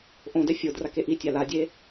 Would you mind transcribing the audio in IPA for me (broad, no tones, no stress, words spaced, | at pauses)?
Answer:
ʔõdɛ fʲʊ drakeʔitʲa ladʲe